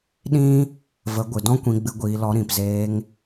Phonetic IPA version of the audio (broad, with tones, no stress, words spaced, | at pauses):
ɗĩ˦ | və˨˦ɡʷɨ˨dɔ̃˦ kʷĩ˧ɡ͡bɨ˧ɡʷiː˧lɔ˧ ɾĩ˨pzeː˧ŋ